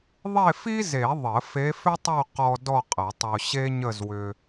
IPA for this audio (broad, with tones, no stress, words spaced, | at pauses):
ðˤe˥˧fi˥ze˨˩˦ ðˤə˨˩˦ fe˧˥fʏ˥tˤo˥˧ qɔ˧ dɔ˥˧qʼə˨˩˦tˤo˧ ɕe˥ɲə˥˧zwʏ˧